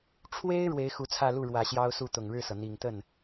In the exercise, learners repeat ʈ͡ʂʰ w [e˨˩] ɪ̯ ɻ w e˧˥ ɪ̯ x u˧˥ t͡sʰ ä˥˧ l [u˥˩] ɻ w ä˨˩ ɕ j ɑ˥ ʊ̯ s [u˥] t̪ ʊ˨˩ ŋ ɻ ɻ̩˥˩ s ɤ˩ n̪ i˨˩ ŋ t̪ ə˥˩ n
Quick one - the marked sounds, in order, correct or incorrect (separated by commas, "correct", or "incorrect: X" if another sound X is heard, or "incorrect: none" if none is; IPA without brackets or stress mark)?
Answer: incorrect: e˥, correct, incorrect: u˥˩